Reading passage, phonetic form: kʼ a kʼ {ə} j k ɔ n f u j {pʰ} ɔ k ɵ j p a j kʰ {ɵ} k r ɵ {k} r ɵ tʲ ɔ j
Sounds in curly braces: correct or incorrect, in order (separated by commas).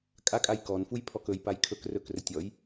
incorrect, correct, correct, correct